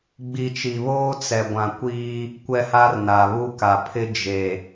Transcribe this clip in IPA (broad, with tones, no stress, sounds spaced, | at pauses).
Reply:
ɡ͡b i˨ t͡ʃ i˨ β oː˦ t͡s ɛ˨ ɡʷ ã˨ kʷ iː˦ | kʷ ɛ˦ h a˦ r n a˨ β u˦ k a˨ pʰ ɪ˦ d͡ʒ e˨